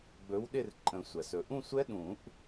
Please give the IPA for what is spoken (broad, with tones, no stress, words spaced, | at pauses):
ɡ͡bɵ˨˥wɗɪ˥˧rǃʼə̃˨˩˦ sʷæ˩s ɵ˩ʔũ˥˧sʷɛ˦˥ ɗũ˨˩˦ʔ